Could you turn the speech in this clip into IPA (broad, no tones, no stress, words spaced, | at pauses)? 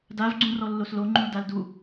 dav ɡ͡ǀũrɔlːoslo ŋ͡ǃũldaldu